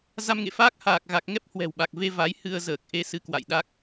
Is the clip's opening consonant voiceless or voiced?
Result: voiced